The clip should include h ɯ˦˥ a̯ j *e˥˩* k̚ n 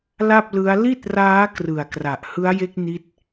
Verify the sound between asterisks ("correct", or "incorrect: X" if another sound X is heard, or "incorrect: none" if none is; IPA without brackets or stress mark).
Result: incorrect: e˦˥